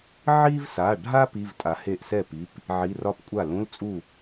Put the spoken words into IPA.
ʕi˥vsa˩˧˩ɖʱa˥ pi˧˥˧vtʼa˨˦he˥˩ʔ sɛ˥˩pi˩˧˩p | ʕi˧˥˧ rɒ˥˧pkʷʼa˥˩ lũ˧˥˧lt͡sʼu˥˩

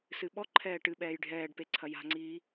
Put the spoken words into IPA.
sɨɓɔ ǃʰɛːʈɨɓɛːj ɖʱɛːɖpe ǀʰɐja̤ŋ͡ǀiː

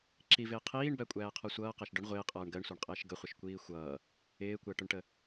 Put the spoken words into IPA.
ǁivɪː qʰiːɳbækʷʼæːqʰɔ sʷʌːqæʃ ɖʊɳ ʁʷɪːqʼʌːɳ ɡɜɳsʷɑɳqʼɪːʃ ɡəχʷɪʃkʷiː xʷʌː | ɪːkʷæʈʊɳʈə

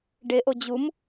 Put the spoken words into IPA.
ɖeʔo d͡ʑum

